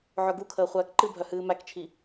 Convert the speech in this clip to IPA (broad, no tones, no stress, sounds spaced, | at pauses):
ʕ œ ɡ u kʰ əː χʷ æː k ǃ ɨ bʱ œ h ɨː m æ k t͡ʃʰ i